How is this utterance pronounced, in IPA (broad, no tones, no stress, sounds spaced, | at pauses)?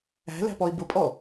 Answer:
æ̤ l æ̤ p ɔ i̯ b ʊ pʼ ɔ